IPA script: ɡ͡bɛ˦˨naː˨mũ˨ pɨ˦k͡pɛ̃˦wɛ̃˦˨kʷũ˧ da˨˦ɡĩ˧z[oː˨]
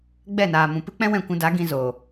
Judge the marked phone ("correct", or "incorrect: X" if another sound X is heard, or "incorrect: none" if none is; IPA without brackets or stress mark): correct